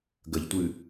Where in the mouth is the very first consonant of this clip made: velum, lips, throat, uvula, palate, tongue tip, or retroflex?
velum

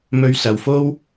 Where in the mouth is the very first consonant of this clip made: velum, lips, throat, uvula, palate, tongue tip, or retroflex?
lips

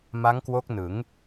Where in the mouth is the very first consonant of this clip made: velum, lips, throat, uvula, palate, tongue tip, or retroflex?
lips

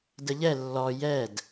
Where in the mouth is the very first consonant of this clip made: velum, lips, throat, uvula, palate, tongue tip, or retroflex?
tongue tip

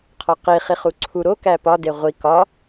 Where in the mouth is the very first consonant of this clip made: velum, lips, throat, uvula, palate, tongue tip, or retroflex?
uvula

